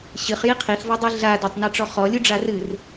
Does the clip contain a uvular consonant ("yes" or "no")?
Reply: yes